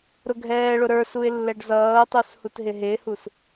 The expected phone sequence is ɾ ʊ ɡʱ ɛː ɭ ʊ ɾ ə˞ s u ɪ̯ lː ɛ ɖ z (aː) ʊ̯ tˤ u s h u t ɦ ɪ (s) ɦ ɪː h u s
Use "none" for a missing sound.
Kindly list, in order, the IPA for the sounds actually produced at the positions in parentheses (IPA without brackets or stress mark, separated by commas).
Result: ʌː, none